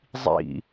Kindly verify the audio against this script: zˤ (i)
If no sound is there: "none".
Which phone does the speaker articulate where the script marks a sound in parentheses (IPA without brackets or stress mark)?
ḭ